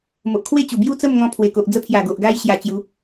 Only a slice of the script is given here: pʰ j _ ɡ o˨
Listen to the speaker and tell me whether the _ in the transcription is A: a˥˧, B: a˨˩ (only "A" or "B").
B